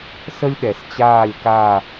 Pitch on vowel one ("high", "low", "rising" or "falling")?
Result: high